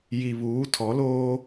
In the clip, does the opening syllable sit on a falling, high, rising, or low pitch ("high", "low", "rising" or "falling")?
low